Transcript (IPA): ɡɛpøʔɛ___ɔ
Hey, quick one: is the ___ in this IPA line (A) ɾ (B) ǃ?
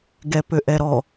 A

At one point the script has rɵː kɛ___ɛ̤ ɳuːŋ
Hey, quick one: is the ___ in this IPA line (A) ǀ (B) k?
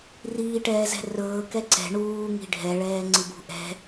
A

